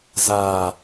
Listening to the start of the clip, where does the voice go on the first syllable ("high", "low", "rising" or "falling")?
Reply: low